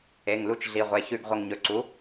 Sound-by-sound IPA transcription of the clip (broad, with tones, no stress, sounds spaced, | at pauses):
e˩˧˩ ŋ l u˧˥ t͡ʃ ɮ i˩˧˩ ʁʷ e˩˧˩ ç ʉ˧˩ ɡ ʁʷ ɐ˧˩ ŋ ɲ ɵ˩˧ ǀ u˩˥